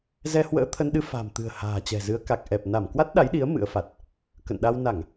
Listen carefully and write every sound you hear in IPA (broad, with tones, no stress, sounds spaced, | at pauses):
z ɛ˧ h w ə̰ː˧˥ t̪ʰ ə˧ n ɗ ɨ˧ f a̤˨˩ m t̪ ɨ̤˨˩ ə̯ h a̤ː˨˩ t͡ɕ ɛ̤˨˩ z ɨ˨˦ ə̯ k a˨˩ k̚ ʔ ɛ˨˩ p̚ n a˧˩ m k w a˦˥ t̚ ɗ a˨˦ j ɗ i˨˦ ə̯ m ɨ̰˧˥ ə̯ f a˨˩ t̚ | k ə̰˧˨ n ɗ a˧ w n a˧˩˨ ŋ